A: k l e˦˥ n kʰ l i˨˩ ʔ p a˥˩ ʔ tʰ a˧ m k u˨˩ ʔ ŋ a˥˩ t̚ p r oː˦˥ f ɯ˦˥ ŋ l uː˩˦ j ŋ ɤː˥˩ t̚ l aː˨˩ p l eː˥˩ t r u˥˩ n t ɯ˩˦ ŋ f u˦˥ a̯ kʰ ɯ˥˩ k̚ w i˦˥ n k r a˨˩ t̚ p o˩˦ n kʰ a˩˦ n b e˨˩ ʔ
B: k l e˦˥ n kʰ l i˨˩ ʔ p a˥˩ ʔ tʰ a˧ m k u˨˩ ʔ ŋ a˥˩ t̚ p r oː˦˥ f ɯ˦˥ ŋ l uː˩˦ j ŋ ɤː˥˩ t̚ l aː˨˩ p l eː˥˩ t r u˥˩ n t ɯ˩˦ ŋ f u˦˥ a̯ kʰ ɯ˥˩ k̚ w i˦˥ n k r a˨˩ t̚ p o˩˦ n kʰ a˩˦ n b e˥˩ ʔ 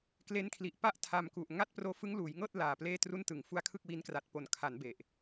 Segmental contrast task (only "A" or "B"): A